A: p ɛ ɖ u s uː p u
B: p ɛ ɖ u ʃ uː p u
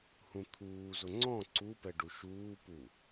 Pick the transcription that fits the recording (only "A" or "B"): B